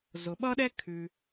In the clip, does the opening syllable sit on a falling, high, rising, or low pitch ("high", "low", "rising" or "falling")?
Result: low